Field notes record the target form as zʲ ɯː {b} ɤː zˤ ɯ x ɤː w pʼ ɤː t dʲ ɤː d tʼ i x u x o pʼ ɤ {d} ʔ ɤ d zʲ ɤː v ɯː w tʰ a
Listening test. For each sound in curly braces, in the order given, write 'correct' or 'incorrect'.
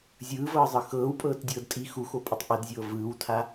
incorrect, incorrect

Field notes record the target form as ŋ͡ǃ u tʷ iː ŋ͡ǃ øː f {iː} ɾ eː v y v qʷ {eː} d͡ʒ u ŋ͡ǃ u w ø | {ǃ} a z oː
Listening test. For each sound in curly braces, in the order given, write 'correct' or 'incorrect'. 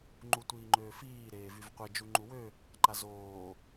correct, incorrect, correct

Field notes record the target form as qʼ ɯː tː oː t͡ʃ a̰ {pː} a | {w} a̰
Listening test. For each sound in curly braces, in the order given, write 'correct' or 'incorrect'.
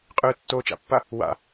correct, correct

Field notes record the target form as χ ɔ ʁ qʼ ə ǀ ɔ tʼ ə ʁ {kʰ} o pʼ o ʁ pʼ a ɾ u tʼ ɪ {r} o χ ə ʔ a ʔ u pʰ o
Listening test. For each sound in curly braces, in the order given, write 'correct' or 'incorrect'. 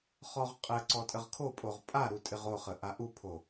correct, incorrect

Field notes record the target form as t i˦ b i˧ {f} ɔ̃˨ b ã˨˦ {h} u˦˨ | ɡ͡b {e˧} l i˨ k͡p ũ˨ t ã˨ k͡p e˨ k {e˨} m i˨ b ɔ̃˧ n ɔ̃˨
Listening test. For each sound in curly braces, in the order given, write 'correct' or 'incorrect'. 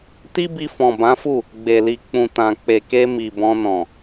correct, incorrect, incorrect, incorrect

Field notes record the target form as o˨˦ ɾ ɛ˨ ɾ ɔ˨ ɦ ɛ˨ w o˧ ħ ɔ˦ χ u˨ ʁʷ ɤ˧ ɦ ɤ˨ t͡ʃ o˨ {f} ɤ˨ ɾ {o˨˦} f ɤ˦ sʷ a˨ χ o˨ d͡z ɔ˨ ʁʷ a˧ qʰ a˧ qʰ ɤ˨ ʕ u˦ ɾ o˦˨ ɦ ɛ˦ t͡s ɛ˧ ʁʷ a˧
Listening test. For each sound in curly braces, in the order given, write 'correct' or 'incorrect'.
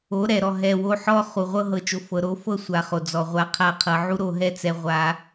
correct, correct

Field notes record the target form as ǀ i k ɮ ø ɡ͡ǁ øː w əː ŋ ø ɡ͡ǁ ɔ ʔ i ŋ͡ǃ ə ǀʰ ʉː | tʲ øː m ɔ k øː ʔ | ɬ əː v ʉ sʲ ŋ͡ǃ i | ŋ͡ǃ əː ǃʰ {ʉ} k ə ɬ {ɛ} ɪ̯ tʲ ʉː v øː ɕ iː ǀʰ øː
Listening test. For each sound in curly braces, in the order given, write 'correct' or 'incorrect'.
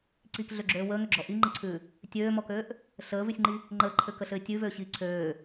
incorrect, incorrect

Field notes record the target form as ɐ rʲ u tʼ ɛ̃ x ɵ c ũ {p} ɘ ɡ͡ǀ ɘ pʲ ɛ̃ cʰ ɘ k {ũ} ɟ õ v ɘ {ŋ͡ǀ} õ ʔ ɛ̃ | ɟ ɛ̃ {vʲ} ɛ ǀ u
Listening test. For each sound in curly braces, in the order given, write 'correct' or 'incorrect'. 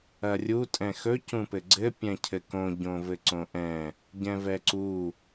correct, incorrect, incorrect, incorrect

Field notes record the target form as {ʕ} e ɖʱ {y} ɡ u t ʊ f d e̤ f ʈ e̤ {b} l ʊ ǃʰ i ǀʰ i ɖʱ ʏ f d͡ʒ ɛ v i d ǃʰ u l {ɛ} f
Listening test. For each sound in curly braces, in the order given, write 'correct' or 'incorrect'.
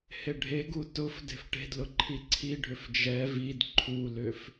incorrect, incorrect, incorrect, incorrect

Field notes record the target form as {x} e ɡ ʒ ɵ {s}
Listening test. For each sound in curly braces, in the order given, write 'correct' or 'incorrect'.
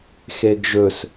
correct, correct

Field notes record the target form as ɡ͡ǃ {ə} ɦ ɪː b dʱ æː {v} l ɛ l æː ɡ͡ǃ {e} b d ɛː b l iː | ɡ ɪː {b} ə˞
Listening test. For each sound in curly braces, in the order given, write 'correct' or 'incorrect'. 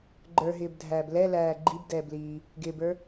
incorrect, incorrect, incorrect, correct

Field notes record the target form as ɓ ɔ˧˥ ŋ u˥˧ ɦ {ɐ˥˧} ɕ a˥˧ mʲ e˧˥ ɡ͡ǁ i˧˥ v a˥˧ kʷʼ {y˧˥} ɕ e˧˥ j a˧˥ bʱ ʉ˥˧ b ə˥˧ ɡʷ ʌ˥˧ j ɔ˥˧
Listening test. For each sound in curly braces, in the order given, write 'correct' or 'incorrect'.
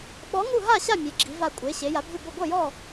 incorrect, incorrect

